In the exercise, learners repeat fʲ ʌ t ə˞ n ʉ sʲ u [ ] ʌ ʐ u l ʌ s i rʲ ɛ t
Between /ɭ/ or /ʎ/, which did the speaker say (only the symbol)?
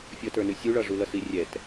ɭ